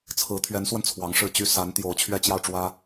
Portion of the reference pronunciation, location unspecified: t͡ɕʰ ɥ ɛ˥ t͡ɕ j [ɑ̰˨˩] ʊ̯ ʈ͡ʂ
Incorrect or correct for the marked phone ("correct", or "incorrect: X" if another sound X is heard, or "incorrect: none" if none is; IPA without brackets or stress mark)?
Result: incorrect: ɑ˥˩